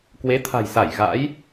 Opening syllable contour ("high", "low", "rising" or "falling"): rising